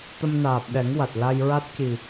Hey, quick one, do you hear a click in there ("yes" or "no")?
no